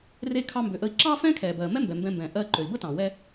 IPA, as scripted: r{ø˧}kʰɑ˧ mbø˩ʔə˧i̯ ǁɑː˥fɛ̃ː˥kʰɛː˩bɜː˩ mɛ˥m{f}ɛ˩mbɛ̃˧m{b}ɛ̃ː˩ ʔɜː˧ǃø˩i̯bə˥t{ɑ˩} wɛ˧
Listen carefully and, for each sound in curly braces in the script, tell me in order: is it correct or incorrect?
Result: incorrect, incorrect, correct, incorrect

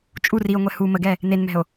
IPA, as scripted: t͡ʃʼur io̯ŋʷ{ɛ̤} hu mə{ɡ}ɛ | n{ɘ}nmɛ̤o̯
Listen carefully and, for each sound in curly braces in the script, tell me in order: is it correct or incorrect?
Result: incorrect, correct, incorrect

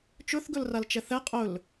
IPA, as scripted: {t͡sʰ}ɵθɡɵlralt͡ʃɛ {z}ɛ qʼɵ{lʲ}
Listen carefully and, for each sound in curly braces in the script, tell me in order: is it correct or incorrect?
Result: incorrect, incorrect, incorrect

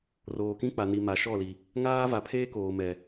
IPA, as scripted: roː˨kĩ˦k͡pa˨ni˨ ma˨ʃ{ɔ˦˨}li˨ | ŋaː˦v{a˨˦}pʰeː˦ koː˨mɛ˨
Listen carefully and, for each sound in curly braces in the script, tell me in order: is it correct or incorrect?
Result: correct, correct

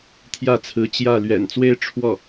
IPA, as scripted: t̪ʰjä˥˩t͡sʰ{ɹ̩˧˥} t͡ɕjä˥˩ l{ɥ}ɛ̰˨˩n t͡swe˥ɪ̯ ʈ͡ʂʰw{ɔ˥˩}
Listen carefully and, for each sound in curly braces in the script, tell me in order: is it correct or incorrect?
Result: correct, correct, correct

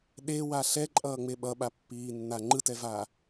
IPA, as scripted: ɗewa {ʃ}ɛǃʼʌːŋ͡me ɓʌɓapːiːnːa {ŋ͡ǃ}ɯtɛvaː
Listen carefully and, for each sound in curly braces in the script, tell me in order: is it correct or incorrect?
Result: incorrect, correct

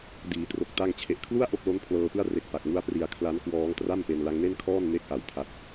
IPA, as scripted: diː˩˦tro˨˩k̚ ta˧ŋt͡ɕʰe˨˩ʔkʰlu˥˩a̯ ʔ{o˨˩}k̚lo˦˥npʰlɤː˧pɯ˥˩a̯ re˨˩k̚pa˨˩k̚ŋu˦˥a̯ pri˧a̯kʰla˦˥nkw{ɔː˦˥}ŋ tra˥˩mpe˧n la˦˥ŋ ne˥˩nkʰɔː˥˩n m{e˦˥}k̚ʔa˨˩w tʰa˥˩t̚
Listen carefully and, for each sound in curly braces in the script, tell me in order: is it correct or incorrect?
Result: incorrect, correct, correct

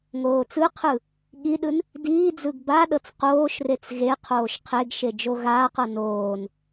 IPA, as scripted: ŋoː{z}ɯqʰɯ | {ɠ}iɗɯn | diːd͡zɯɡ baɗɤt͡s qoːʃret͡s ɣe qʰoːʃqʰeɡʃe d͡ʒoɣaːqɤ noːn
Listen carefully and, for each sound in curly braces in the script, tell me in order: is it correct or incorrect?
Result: incorrect, correct

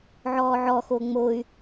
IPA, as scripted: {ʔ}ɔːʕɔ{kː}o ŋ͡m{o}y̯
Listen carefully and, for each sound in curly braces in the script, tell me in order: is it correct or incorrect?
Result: incorrect, incorrect, correct

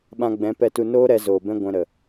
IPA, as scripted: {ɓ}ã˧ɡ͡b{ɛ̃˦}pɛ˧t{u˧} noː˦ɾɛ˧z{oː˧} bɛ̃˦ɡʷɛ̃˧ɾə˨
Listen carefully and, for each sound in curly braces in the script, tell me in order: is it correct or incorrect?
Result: correct, incorrect, correct, incorrect

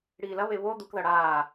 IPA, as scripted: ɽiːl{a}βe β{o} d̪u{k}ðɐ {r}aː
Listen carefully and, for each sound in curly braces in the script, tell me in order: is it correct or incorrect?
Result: incorrect, correct, correct, incorrect

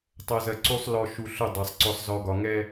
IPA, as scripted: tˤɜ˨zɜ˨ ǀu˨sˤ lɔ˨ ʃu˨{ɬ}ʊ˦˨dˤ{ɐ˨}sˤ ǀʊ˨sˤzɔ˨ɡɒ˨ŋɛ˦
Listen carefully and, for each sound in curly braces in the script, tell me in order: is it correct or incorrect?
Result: correct, incorrect

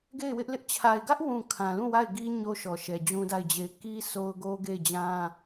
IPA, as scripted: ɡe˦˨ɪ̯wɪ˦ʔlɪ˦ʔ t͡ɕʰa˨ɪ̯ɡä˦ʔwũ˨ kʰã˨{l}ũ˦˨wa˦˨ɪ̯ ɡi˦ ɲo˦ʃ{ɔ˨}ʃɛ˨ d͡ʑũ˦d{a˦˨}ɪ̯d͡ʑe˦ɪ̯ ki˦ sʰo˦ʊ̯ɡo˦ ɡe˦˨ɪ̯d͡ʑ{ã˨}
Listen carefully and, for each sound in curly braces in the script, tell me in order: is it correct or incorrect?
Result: correct, correct, correct, incorrect

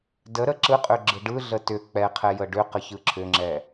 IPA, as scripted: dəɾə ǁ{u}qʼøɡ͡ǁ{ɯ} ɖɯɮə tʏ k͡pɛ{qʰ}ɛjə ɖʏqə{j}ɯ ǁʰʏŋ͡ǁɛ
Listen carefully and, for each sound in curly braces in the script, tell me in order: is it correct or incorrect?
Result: incorrect, correct, correct, incorrect

